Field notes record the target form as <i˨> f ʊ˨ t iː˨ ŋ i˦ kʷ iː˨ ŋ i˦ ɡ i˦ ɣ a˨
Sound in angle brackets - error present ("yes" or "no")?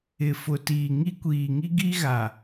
yes